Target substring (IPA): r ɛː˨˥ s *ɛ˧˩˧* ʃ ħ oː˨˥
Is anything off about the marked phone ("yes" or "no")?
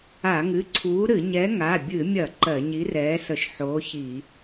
yes